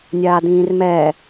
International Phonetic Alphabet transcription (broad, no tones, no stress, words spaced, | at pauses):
nʲaːdĩːrmɛ